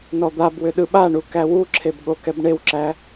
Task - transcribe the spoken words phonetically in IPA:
n ɔ d̪ a b w ʏ ɗ ɯ ɓ a ɳ u k æ w u ǁʰ e b ɠ o k ɛ b ɳ e w ǁ æ

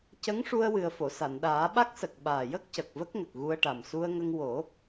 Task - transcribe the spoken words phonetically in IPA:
c ə˧˥ ŋ ʂ u˧ ə̯ w ɨ˨˩ ə̯ f o˨˩˨ s a˨˩˨ n ɗ aː˨˩˦ ɓ a˦˥ k̚ s ə˨˩ k̚ ɓ aː˨˩ j ə˦˥ k̚ c ə˨˩ k̚ v ə˦˥ k̚ ŋ ə˨˩ k̚ ɣ u˧ ə̯ ʈ a˨˩ m s u˧ ə̯ ŋ ə˧ ŋ w o˨˩˦

